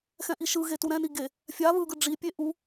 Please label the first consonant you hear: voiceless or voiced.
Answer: voiceless